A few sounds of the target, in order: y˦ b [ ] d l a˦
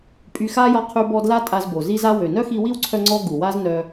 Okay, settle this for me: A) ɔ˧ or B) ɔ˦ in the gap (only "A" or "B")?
B